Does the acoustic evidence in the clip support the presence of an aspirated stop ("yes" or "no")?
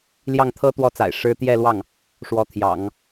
yes